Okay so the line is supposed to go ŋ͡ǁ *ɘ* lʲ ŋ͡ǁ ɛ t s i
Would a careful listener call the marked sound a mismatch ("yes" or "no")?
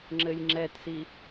no